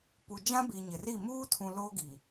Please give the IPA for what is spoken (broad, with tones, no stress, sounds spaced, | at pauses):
p u˨ d͡ʒ ã˦ b i˨ ɲ ɪ˨ r i˦˨ m uː˦ tʰ ũ˨ l oː˦ ɡ i˨